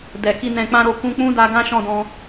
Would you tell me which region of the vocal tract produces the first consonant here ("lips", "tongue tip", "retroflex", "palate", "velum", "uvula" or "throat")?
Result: tongue tip